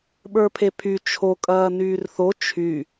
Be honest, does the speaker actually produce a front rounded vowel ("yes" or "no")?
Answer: yes